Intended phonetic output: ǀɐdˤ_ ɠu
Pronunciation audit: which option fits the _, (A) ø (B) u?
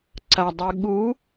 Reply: B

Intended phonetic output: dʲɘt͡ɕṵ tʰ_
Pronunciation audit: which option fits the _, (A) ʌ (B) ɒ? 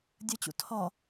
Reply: B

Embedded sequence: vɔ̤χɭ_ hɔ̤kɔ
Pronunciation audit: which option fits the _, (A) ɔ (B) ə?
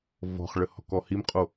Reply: B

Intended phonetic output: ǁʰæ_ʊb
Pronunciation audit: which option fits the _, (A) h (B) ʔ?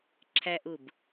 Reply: B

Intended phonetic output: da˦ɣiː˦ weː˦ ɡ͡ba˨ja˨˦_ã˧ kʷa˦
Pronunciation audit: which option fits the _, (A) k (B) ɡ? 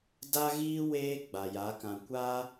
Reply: A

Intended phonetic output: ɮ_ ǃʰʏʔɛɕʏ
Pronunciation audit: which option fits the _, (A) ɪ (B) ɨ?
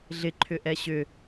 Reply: A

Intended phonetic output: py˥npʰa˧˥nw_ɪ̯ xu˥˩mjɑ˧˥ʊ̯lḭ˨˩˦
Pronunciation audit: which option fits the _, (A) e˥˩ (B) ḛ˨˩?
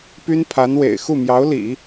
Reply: B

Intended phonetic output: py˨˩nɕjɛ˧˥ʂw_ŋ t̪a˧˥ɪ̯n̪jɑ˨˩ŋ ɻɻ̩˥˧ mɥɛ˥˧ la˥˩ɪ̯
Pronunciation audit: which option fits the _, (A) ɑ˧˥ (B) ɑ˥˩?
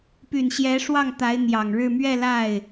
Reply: B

